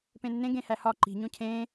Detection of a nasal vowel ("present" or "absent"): present